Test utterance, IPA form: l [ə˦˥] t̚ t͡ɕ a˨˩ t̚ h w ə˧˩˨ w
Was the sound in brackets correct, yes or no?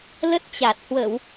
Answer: yes